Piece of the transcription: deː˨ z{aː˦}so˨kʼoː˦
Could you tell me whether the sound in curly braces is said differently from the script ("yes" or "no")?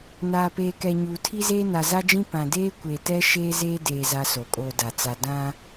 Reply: yes